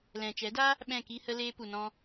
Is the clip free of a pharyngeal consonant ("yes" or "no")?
yes